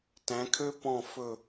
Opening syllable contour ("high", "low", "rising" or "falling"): rising